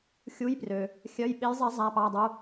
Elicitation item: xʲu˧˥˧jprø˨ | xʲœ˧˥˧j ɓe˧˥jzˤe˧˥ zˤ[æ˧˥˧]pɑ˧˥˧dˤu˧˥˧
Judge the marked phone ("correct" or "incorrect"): correct